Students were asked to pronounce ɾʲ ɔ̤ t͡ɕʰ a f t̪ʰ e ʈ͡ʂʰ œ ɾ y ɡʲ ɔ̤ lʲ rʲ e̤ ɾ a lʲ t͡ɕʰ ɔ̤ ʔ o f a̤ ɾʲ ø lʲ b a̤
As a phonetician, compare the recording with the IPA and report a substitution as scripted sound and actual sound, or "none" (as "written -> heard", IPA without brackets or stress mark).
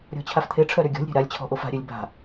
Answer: rʲ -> ɾʲ